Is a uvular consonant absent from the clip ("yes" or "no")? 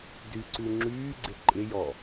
yes